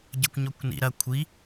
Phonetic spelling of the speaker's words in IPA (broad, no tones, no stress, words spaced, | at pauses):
ɟɐkʷɲɔkʷnḭ ɾɐ kʷʰi